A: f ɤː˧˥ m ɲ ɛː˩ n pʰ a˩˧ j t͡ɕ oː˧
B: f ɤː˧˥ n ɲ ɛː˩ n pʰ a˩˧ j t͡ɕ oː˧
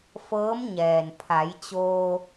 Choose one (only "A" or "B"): A